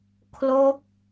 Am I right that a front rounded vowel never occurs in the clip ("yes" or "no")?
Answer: yes